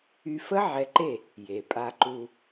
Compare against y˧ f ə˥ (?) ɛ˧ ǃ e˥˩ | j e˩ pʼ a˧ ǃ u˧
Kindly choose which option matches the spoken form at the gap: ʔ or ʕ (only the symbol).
ʕ